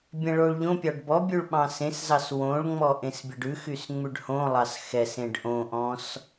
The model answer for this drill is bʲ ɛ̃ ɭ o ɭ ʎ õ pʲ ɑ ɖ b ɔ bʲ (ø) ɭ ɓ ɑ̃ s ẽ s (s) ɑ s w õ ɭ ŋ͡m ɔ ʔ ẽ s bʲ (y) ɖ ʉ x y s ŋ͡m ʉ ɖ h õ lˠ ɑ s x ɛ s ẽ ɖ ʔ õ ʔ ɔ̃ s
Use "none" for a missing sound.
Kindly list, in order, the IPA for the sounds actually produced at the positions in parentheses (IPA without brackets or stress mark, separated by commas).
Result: ʉ, z, e